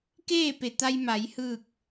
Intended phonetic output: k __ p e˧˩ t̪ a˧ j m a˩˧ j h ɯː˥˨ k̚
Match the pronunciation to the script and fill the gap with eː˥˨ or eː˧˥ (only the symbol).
eː˥˨